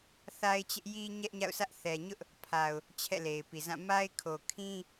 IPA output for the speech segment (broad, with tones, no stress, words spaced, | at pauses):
θa˦ɪ̯t͡ɕɪ˦ʔji˦ ɲɛ˦ʔɲa̰˦˨ʊ̯sʰä˦ʔ θɛ˨ɲʊ˦ʔ | pʰa˨ʊ̯ | t͡ɕʰɛ̰˦˨le˨ɪ̯pi˨zã˦˨ ma˦ɪ̯kʰo˨ kʰĩ˦